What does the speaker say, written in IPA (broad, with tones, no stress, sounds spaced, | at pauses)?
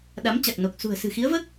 ɗ a˨˦ m t͡ɕ a˨˩ k̚ n o˨˩ k̚ s ṳ˨˩ ə̯ s ɨ̤˨˩ x i˨˦ ə̯ v əː˦˥ k̚